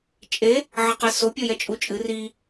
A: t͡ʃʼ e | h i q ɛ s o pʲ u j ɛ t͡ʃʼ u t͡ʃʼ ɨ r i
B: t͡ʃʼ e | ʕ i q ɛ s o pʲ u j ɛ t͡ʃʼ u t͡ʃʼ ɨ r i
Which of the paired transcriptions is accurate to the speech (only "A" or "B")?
B